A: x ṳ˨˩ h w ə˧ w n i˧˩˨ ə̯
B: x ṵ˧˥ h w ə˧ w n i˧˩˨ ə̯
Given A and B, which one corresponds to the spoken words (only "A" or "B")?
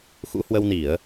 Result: B